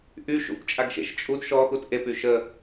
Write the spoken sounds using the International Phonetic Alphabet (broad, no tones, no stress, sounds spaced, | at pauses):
ʔ y ʃ ṵ p t͡ʃʼ a ɡ ʃ ḛ ʃ t͡ʃʼ u d ʃ ɔ x u t ʔ e p y ʃ ə